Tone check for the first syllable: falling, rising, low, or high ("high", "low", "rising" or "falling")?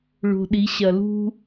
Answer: low